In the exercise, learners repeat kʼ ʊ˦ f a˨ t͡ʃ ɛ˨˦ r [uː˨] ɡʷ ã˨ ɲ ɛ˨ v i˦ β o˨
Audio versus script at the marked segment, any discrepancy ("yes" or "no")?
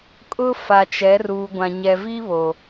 no